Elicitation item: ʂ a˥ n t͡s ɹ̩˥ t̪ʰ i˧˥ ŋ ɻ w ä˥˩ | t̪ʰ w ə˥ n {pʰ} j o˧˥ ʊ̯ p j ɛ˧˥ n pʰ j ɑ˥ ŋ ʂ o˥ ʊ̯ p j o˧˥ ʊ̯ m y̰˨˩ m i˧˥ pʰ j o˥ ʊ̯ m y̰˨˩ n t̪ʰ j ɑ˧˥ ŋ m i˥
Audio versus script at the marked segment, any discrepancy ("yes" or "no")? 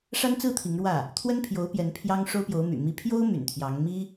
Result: no